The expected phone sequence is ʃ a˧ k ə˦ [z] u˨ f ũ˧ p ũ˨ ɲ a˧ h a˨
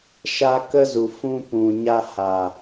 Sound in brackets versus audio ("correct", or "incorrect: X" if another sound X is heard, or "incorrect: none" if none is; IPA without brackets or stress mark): correct